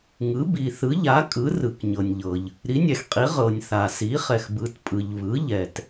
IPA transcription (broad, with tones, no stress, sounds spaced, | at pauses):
ŋ ɯ˩˥ b i˩ θ ɯ˩˥ ʎ a˩˥ kʼ ɯ˩˥ r ɯ˩ k ɲ ɤ˩ nʲ ʎ ɤ˩ ʎ | ɾ i˩˥ nʲ ɛ˩ x qʼ i˩˥ ʁ ɤ˩ nʲ θ a˩ s i˩˥ χ ɛ˩ x b ɯ˩˥ t pʼ ɯ˩ ʎ β ɯ˩˥ ʎ ɛ˩ t